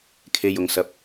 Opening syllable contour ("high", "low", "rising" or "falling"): low